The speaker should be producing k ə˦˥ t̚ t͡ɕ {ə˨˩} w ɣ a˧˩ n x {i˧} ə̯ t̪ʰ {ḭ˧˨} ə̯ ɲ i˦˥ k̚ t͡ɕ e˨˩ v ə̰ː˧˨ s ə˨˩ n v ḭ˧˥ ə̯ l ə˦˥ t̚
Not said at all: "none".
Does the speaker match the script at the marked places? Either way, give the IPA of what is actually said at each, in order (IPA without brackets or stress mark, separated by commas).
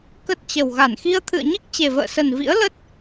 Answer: ə˨˩, i˧, ɨ̰˧˨